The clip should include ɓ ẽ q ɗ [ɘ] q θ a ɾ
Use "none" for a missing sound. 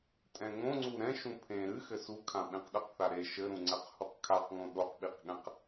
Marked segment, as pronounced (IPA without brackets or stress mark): ɘ